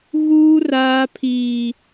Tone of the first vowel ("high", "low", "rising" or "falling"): high